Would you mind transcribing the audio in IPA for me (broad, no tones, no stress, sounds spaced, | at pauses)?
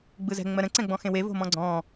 ɡ͡b ɯ z ɛ̤ ŋ͡m ɜ ɾ ə̃ ǀ ɛ̃ ɡ͡b ɔ̃ x ẽ w e v o̤ m ɔ̃ ɡ͡ǀ ɔ̃